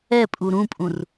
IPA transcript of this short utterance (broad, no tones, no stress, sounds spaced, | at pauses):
ɛ pʼ u ɾ ũ pʼ ũ r